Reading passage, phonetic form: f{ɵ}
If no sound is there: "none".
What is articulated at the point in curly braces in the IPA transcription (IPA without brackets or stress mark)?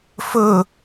ɵ